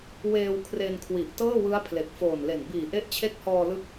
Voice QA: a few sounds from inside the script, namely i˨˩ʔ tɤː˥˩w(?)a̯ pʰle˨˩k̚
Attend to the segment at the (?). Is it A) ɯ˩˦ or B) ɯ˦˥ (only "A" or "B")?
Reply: B